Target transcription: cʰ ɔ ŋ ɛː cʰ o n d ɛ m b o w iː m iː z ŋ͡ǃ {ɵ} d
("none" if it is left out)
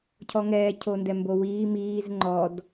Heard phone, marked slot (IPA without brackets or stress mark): ɔ